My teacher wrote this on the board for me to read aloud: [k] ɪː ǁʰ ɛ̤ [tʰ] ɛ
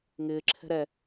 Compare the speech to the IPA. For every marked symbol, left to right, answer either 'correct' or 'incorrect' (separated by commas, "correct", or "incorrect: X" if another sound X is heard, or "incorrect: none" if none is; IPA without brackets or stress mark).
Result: incorrect: ŋ, incorrect: ɾ